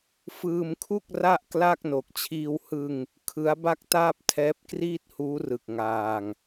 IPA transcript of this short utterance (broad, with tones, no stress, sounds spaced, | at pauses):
f ɯː˧ m kʰ u˥˩ k̚ r a˥˩ ʔ k l a˥˩ k̚ n o˨˩ k̚ t͡ɕʰ iː˧ w h ɯ˧ ŋ | kʰ ɯ˦˥ a̯ b a˥˩ k̚ t aː˥˩ p̚ tʰ ɛː˦˥ p̚ k r iː˥˩ t̚ h uː˦˥ r ɯ˨˩ k̚ ŋ aː˧ ŋ